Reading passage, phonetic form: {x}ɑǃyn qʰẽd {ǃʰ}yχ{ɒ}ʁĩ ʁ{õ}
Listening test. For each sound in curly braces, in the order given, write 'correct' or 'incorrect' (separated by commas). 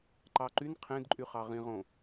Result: incorrect, incorrect, incorrect, correct